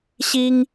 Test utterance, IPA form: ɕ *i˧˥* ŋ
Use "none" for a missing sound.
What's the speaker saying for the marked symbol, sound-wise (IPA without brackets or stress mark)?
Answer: i˥